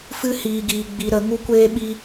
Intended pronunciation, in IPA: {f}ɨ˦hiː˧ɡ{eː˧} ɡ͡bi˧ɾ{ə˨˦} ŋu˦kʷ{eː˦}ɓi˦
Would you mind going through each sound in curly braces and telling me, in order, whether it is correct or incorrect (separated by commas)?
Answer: correct, incorrect, correct, correct